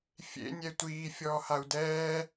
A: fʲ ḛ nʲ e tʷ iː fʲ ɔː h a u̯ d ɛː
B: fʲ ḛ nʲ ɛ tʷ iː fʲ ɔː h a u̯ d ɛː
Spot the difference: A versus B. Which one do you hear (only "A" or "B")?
B